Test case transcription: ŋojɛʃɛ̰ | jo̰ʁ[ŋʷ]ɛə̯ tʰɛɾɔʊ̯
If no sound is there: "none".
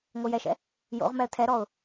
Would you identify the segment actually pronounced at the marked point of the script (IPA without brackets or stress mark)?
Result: m